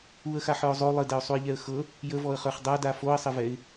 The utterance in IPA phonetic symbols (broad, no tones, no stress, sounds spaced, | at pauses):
u ə̯ x a ħ ə˞ ʊ̯ zˤ o lˠ ɘ d ɛ ʊ̯ sˤ u ɪ̯ ʎ ɛ ə̯ x ɤ | j ə v ɔ ə̯ χ ə˞ χ dˤ a d a f o ə̯ sˤ ɘ v ɛ ɪ̯